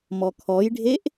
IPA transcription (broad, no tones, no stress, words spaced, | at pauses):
mɔkʰɔjɖʱeʔ